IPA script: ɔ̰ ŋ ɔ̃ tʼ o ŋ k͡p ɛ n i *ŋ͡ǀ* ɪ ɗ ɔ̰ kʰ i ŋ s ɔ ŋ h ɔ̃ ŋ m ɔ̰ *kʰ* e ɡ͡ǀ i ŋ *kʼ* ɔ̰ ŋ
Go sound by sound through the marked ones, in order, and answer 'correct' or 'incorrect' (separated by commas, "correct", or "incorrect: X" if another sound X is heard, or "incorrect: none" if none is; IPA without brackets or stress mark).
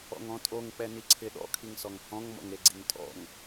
incorrect: ǀʰ, incorrect: ŋ, incorrect: tʼ